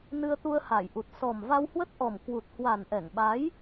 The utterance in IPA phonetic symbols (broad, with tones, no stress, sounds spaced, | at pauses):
n ɨ˧ ə̯ t̪ u˧ ə̯ h a˧˩ j ʔ u˨˩ t̚ s ɔ˨˩ m v a˧ w h w ə˦˥ t̚ ʔ ɔ˨˩ m k w u˨˩ t̚ h w a˨˩ n ʔ ɛ˧˩ ŋ ɓ a˨˦ j